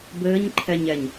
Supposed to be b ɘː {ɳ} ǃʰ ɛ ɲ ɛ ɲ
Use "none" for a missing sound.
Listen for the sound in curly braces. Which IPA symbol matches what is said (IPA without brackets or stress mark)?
ɲ